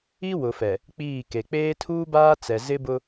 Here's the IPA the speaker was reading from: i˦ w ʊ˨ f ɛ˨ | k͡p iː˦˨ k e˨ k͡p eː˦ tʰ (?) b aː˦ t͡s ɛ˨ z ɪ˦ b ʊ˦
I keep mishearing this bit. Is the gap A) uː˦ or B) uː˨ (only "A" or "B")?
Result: A